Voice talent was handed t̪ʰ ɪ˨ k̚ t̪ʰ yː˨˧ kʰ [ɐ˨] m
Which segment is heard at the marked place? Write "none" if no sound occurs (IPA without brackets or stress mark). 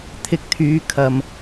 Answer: ɐ˨